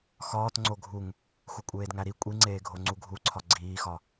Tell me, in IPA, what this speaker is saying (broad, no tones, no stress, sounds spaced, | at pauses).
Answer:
x ɒː t ŋ͡ǀ o ɡʱ u ŋ | x u kʷʼ eː d ŋ æ ɾ i kʷʼ i ŋ͡ǀ eː ɡʱ o ŋ͡ǀ u ɡʱ u ǀʰ ɒ ɡ͡ǀ iː x ɒ